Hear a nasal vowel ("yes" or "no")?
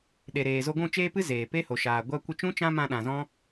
yes